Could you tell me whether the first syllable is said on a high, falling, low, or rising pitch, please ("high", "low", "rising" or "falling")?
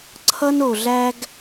high